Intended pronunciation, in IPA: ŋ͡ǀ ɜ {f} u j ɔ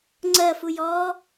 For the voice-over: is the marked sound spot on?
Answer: yes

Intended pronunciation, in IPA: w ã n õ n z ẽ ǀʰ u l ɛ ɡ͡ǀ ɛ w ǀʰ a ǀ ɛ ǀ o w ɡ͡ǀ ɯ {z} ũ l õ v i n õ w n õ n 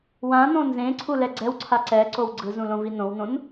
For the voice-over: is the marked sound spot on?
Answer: yes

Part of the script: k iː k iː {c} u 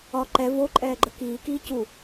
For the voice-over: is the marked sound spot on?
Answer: yes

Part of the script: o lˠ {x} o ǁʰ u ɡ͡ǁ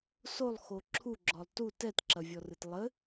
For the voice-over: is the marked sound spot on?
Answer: yes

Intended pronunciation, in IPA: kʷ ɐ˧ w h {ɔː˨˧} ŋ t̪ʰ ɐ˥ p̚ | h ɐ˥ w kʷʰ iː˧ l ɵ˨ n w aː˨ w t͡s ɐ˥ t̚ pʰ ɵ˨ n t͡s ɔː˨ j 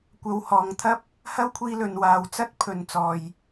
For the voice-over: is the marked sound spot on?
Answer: no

